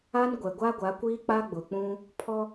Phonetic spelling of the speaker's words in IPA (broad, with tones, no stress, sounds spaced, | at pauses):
a˦ n ɡʷ ɛ˨ ɡʷ a˦ ɡʷ a˨˦ kʷ iː˦ k͡p a˦ ɡ͡b ʊ˨ k͡p ũ˦ | pʰ ɔ˦